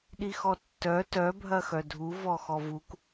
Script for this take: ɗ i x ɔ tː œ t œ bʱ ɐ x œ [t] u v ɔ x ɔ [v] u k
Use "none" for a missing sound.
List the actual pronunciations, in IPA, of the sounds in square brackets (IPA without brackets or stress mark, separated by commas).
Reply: dʱ, v